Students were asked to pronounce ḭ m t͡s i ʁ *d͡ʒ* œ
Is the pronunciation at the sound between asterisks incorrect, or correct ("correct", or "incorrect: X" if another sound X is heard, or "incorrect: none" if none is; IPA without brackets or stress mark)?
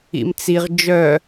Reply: correct